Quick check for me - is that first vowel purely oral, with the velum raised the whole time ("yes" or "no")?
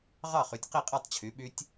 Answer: yes